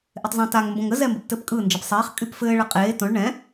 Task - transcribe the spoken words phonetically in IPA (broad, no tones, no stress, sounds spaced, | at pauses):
ʔ e tˤ zˤ õ t a ŋ m b õ ŋ ə z ɛ m b ɘ p t ɘ p kʼ ɯ n d͡ʒ ə p sˤ eː χ kʼ y p f ɘː ɭ ə qʼ eː t õ ɭ ɳ ɛ̃